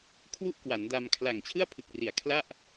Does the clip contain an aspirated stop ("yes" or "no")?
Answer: yes